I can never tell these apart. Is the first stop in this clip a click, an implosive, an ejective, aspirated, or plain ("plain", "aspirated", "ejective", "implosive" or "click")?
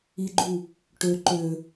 click